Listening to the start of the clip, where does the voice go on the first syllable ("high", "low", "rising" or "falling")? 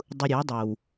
low